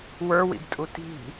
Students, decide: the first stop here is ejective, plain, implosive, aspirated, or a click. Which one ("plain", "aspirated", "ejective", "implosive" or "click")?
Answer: plain